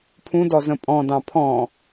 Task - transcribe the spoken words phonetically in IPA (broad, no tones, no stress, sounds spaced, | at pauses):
pʰ ũ d ɔ z ə̃ pʼ ɔ̃ d ɑ̃ pʰ ɔ̃